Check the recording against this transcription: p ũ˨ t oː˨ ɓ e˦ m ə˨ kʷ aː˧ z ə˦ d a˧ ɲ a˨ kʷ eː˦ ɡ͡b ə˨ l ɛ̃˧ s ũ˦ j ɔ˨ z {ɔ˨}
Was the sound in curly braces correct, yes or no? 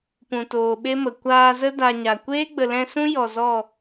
no